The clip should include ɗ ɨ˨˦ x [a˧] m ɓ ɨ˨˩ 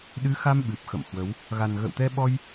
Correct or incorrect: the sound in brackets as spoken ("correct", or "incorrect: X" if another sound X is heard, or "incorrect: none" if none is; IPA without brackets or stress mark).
correct